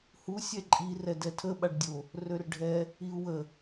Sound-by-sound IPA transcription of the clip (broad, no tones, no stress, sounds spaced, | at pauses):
h u sʲ ɛ ǃʼ i r ɛ d ɛ tʰ ə ɓ a ɖ dʲ o | r ø r ɖʱ ɛ | i u̯ w ə